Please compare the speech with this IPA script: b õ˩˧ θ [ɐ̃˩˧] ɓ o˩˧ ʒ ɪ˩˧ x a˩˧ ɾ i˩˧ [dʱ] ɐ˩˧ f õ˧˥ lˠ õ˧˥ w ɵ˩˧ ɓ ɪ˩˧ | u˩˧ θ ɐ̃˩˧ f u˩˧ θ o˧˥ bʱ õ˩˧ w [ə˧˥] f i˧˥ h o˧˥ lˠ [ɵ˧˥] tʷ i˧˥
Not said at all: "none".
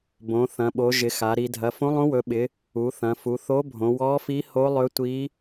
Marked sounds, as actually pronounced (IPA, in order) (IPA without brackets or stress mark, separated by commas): ɐ̃˩˧, dʱ, ɔ˧˥, ɵ˧˥